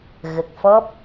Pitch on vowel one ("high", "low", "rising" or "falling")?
low